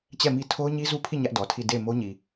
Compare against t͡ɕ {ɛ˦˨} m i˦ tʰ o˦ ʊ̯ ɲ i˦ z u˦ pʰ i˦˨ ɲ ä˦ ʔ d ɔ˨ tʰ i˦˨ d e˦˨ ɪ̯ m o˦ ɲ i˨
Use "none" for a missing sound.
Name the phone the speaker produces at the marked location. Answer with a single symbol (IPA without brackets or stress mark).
ɛ˦˨